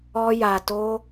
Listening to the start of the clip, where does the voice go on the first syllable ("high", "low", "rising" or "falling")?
high